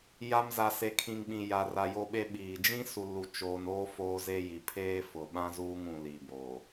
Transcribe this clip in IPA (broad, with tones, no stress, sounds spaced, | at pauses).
j a˨ m z a˨ s e˨ kʰ ĩ˨ ŋ ɓ ĩ˨ j a˨ r a˨ j o˨ ɓ e˨ ɓ iː˨ d͡ʒ ĩ˦ s u˨ l u˨ t͡ʃ oː˨ n oː˦ f oː˦ z e˦ j i˨ pʰ eː˦ f ʊ˨ ɓ ã˦ z uː˦ ŋ ũ˨ l i˨ b o˨